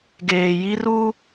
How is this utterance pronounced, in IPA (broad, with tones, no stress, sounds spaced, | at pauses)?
ɡ eː˨ j i˦ r u˦